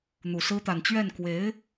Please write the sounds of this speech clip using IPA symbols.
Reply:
n̪u˨˩sɹ̩˥ t̪a˨˩nt͡ɕɥɛ˥˩n kwe˧˥ɪ̯

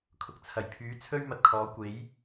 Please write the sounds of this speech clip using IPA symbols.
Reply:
kʰʊ˨k̚t͡sʰɐ˨˩j pʰyː˨˥t͡sʰɵ˥ɥmɐ˨t̚kʰɔː˨˥ kʷe˨˥j

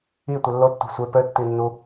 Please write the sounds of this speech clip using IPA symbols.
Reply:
itʷe lːotːo̤ sʷe pɘtːi nːu

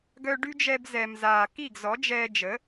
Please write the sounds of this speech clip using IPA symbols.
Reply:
ɡœ˧ɖy˥d͡ʒɛ˧b zɛ˩mzaː˩ ki˥˩ɡzɔ˩˥d͡ʒɛː˧ d͡ʒə˩˥

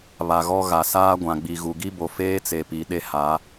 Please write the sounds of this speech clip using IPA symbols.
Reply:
βa˨ɣɔ˦ ɣa˨saː˦ɡʷã˨ ɡ͡bi˨ ɣu˨ɡi˦bo˨ feː˦t͡se˨pi˨ ɗe˦ha˨˦

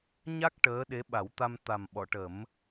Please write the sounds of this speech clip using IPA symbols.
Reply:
ɲa˦˥k̚ ʈəː˧˥ɗe˧˥ɓa˨˩˦w t̪a˧mt̪a˨˩m ɓɔ˨˩˨ʈə˨˩˦m

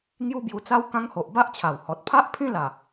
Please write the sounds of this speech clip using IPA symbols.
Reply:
ŋju˦bju˧t͡sa˦w kã˦ŋho˨ʔ ba˦ʔt͡ɕʰa˨˩whɔ˨t̚ pʰa˦ʔpʰĩ˦la˨˩

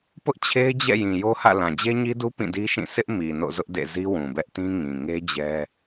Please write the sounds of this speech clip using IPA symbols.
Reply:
pʊ˦ʔt͡ɕʰe˦ɪ̯d͡ʑɛ̰˦˨ jĩ˨jo˦hä̰˦˨ lã˨d͡ʑe˦ɲi˦du˦ pĩ˦˨di˦ʃĩ˦˨ sʰɪ˦ʔ mi˨ no̰˦˨zʊ˦ʔdḛ˦˨ zi˦wũ˨bɛ˦ʔtĩ˦ ŋĩ˨ ŋe˦d͡ʑɛ˦

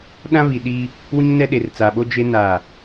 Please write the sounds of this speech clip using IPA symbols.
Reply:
ɗã˦βi˨ɗiː˦ | wĩ˦ŋnɛ˦ɗe˨r t͡sa˨ɓo˦ d͡ʒe˦ na˦˨

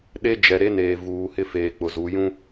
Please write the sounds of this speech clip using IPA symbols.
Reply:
ɗe˦ d͡ʒɛ˨ɾe˦neː˨ vuː˨hɪ˦ feː˨k͡pʊ˨zu˨˦ jũ˦

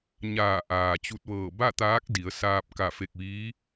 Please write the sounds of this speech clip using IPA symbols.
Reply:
ɲaː˧˩ʔaː˩t͡ɕu˧t̚ʋɤː˧˩ ba˥˨t̪aː˧˥k̚ di˩˧ə̯saː˧p̚ ka˧˩fe˧˩k̚ʋiː˧˥

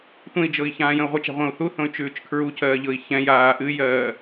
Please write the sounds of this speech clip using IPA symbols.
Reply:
tʷẽi̯d͡ʒɤi̯ çãːjə̃u̯ʁʷət͡ʃa̤ ʁʷə̃ːu̯θuθõy̯ t͡ʃʉːt͡ʃkʰɹucʰɜː ʎɤi̯çɛ̃jaː ʔɨjɜː

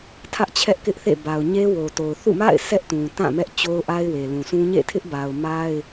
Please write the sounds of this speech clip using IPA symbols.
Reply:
tʰä˦ʔt͡ɕʰɛ˦ʔkɪ˦ʔθḛ˦˨ ba˨ʊ̯ɲe˦wo˨to˨ʊ̯ θṵ˦˨ma̰˦˨ɪ̯ sɛ˦ʔtũ˨tã˦˨mɛ˦ʔ t͡ɕo˦ʊ̯ʔa˦ɪ̯we˨ lũ˨sʰũ˦ ɲḛ˦˨tʰɪ˦ʔba˨ʊ̯ ma˦ɪ̯

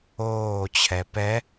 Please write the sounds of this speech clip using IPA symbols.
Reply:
oːt͡ɕʰɛ pɛ

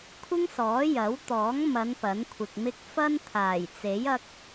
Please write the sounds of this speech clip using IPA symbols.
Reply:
kʷʰɪ˥ŋsɔː˨˥ jɐ˨˥wt̪ɔː˨˥ŋmɐ˨˧n pɐ˨˥nkʷʰɪ˨k̚mɪ˥k̚ fɐ˥n t̪ʰaː˨˩jt͡se˨˥j ɐ˥k̚

